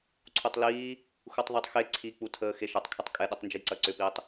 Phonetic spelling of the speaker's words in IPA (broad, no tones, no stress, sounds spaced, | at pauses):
ǀʰ u tˤ l iː | x u tˤ ðˤ e tˤ x e ǀʰ i k͡p u tʰ əː x e ʃ ɐ tˤ kʰ ɛ tˤ kʼ ɛ ɗ u tˤ n d͡ʒ i ǀ ɐ ǀ ʏ p iː tˤ